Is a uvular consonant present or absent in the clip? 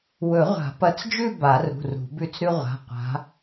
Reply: present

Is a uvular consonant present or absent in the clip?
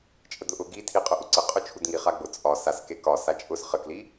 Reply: present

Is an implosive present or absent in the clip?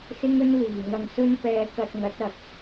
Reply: absent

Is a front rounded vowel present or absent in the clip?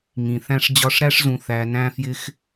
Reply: absent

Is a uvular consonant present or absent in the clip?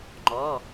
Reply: absent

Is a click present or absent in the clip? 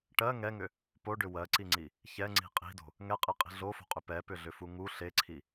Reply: present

